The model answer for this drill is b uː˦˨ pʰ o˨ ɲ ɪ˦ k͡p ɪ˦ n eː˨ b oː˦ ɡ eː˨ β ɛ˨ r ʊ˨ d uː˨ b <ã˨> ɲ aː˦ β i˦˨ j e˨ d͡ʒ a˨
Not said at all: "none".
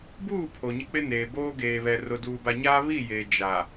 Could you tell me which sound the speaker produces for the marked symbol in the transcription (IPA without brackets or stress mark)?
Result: a˨